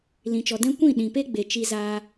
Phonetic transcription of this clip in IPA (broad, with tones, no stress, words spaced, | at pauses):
lĩ˨t͡ʃɔ˨ dɛ̃˦ kʷĩ˦˨ ɗĩ˨pe˦ ɡ͡be˨t͡ʃi˧zaː˧